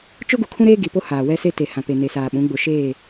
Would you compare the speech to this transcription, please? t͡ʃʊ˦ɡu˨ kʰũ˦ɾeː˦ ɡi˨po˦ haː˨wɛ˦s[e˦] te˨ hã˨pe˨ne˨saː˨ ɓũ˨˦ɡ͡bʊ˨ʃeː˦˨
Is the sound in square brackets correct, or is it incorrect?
correct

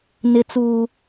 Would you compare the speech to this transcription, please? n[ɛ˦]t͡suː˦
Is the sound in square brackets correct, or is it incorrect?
incorrect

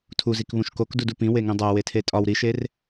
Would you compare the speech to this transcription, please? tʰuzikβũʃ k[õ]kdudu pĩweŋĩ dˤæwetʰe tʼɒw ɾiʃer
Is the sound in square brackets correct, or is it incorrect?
incorrect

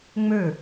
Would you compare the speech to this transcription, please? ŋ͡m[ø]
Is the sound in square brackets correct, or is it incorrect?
correct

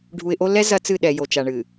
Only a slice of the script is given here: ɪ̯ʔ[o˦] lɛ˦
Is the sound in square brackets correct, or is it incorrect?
correct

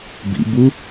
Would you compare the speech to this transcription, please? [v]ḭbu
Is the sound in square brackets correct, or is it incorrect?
incorrect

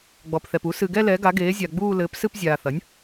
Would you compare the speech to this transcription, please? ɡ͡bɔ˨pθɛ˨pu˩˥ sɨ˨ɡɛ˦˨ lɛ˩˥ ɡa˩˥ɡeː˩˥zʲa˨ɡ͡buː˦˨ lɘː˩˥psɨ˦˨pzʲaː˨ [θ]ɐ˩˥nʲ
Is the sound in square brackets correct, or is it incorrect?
correct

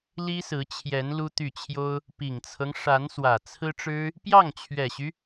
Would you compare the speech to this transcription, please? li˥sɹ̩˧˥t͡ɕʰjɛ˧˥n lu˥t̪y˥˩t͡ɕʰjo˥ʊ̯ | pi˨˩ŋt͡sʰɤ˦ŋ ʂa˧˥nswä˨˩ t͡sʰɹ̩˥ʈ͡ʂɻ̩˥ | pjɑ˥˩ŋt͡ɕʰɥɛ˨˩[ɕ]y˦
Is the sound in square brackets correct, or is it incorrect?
correct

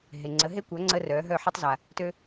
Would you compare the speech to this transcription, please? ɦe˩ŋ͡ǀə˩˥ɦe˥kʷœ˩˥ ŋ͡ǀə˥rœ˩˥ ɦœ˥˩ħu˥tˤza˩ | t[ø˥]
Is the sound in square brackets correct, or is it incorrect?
correct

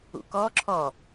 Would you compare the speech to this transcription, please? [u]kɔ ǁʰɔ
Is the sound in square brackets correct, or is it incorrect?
incorrect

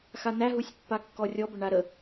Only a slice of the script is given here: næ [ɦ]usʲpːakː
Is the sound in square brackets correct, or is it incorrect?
correct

